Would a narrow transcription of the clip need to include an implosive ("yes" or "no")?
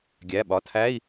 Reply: yes